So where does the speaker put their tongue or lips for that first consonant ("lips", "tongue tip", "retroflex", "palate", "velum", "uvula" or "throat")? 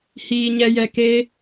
throat